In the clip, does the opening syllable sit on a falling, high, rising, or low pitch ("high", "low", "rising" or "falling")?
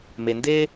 low